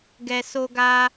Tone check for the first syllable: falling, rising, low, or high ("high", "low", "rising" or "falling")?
low